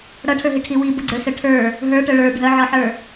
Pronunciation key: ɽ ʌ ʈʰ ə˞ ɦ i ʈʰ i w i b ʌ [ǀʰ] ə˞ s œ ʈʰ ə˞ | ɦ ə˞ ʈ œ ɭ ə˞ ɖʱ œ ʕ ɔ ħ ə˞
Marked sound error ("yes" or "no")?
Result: yes